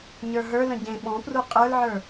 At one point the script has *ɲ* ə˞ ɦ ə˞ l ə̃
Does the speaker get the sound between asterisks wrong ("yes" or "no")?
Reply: no